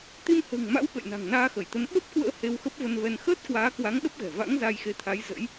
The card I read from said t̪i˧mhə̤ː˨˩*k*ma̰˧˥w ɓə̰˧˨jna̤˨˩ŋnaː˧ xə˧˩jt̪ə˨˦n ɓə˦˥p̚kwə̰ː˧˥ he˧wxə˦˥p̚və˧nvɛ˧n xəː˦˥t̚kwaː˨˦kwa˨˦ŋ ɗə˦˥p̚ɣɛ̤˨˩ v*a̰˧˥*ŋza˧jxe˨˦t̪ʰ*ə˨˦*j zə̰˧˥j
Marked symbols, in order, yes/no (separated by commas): no, yes, no